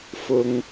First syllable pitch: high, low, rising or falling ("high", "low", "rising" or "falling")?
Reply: high